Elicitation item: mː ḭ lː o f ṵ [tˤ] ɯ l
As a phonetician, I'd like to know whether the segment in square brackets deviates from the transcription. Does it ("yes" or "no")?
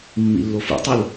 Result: no